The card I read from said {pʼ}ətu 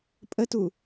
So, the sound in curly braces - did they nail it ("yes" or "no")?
yes